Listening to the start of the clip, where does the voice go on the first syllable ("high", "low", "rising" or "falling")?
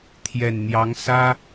low